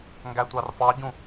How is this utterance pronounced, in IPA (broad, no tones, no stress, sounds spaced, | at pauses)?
ŋ ɡ æ tʷ ɑ r f ɑ ɟ ũ